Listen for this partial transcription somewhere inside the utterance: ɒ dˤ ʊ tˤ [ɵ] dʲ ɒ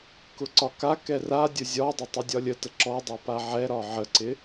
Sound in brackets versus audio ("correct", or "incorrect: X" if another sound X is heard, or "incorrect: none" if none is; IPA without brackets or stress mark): correct